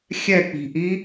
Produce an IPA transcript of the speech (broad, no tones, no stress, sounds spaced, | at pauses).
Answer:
xʲ ɛ k͡p i̤ ʔ i